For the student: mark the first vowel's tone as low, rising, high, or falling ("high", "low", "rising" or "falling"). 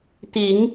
low